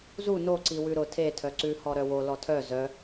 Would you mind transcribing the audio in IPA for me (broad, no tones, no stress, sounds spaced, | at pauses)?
z u n o ǀ i w ʉ ɾ ʊ tʰ e tʰ œ ǀ ʉ h ɔ ɾ œ w o l ɔ tʰ œ z œ